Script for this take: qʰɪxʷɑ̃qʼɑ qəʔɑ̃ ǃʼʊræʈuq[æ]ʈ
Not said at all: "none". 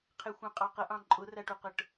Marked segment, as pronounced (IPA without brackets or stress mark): ə